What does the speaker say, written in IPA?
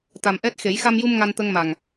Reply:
t̪ a˨˩ m ʔ ɛ˦˥ t̚ x e˨˩˦ j x a˧ m j u˧ m ŋ a˧ n t̪ ə˧ ŋ m a˨˩ ŋ

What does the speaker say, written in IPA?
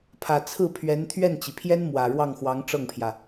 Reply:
pʰ ä˨˩ t͡sʰ ɹ̩˥˩ pʰ ɥ ɛ˧˥ n t̪ʰ ɥ ɛ˥˩ n t͡ɕ i˩ pʰ j ɛ˥ n m w ä˨˩ ɻ w ɑ˥˩ ŋ x w ɑ˧˥ ŋ ʈ͡ʂ ɤ˥˩ ŋ pʰ j ä˩

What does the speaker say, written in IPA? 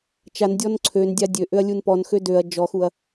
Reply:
t͡ʃ a n dʲ ɔ n ǀʰ ø n dʲ a dʲ ø ʔ ø ɐ̯ lʲ u n p ɔ n x ø d ø ɐ̯ d͡ʒ ɔ x u ɐ̯

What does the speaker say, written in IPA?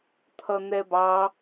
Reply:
t̪ʰ ʌ n̪ ɛ b ɑ

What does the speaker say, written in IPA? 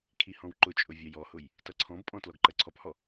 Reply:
kʰ i h ɔ̃ w ǃ ʊ t͡ʃʼ ʊ vʲ ɜ j ɔ h ʊ j | t ʌ ǀʰ ɔ̃ b pʼ ɔ̃ t l ɔ ɡ ǃ ɜ ǀʰ ɔ p h ɔ

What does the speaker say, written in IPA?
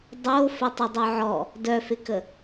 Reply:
dˤ o f ə tˤ ə dˤ œ ʕ ɔ | d œ f ɪ k ə

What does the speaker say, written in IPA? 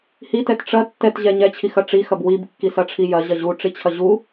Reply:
h i t ɛ t ʈ͡ʂ ɐ tː ɛ t ʑ ɛ ɲ ɛ t͡ɕʰ i x ɐ ʈ͡ʂ i x ɐ b w i b kː i s ɐ ʈ͡ʂʰ i j ɐ ʑ ɐ ʑ u ʈ͡ʂ i t͡ɕʰ ɐ ʑ u

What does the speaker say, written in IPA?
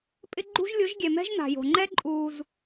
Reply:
pʼ ɪ˦ ɡ͡ǃ ṳ˦ ʒ lʲ o˨˦ ʒ ɡʲ ɛ˨ m ɛ̤˦ ʒ n a̤˨ j o̤˨ ŋ͡ǃ ɛ˦ ǃʼ uː˧ z

